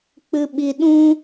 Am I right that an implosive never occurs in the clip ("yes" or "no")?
no